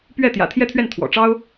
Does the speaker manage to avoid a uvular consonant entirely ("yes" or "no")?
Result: yes